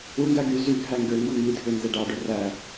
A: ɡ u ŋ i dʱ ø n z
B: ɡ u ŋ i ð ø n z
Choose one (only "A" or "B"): A